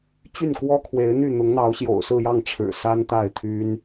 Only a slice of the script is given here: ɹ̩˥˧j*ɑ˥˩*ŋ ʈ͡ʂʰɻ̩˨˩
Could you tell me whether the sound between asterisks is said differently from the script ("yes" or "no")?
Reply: no